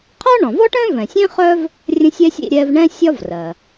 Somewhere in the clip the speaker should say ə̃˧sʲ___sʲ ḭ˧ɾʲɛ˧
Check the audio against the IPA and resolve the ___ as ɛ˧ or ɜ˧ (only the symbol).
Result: ɛ˧